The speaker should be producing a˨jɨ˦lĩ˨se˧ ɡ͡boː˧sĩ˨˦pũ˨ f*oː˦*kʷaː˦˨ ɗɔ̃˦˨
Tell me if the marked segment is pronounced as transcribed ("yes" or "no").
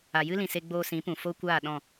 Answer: no